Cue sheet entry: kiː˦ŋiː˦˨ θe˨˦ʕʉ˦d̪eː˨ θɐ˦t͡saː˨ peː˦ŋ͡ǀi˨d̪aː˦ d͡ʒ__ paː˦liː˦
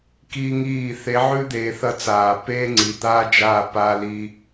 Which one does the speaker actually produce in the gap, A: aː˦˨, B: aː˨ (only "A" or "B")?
A